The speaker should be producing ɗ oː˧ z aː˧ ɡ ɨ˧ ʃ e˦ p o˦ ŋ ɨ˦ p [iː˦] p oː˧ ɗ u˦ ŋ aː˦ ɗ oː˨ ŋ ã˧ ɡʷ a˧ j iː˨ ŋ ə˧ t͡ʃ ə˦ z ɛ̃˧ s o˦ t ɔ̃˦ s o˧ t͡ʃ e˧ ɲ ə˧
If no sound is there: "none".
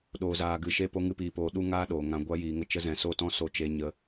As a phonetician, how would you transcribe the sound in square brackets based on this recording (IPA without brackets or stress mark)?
iː˧